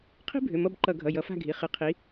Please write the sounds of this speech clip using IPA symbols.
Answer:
qʰ i̤˥ bʱ ʏ˩˧˩ m ʌ˦˨ b ǃ ʌ˧˩˧ ɡʱ ʌ˩˧˩ j ʌ˨˦ f a̤˦˨ ɡʱ i˩˧˩ χ ɨ˨˦ qʰ i˨˦

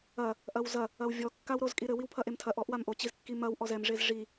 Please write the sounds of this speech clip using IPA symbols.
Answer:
ɐ | ʔ ɐ w z ɐ | ɐ w vʲ ɔ kː a w ɾ o z kʼ i ɾ ɘ w i w pʰ ɐ ʔ e m tʰ ɐ ʔ ɔ ʔ w a m ʔ o t͡ɕ i z kː i m ɐ w ʔ ɔ z ɛ m ʐ e z ʐ i

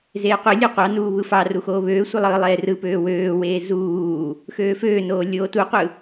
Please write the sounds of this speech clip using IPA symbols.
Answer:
z eː qʷ e lʲ ɯ qʷ ɑ n uː β ɯ f ɑ r u x oː β øː sʷ ɯ lˠ ɯː lˠ eː r ɯ p øː w øː w eː z uː | x øː f øː n oː lʲ oː t u qʷ ɯ

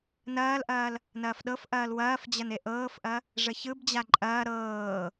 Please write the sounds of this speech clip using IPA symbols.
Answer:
n ɐː l ʔ ɐː l | n ɐː f ɗ ɤ f ʔ ɐː l w ɐː f d͡ʑ ɐ n e ʔ ɤː f ʔ ɐ | ʐ ə ç ɯ b d͡ʑ a ǃʼ ɐː ɾ ɤː

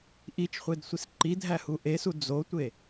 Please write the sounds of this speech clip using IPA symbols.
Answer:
ʔ i t͡ʃ χʷ e d sʷ i s ǃ i dʱ æ h u ʔ e s u d͡z o tʷ e

